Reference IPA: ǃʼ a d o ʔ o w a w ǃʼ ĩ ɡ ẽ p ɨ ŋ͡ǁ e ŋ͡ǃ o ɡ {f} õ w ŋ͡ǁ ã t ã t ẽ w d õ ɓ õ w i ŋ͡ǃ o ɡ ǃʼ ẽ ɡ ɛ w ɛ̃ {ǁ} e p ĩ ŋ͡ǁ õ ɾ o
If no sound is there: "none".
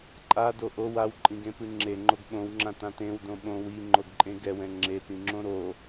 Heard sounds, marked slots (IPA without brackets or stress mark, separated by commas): ɓ, ŋ͡ǁ